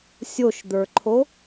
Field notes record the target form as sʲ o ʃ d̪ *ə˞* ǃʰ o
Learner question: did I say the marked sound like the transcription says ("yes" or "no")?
yes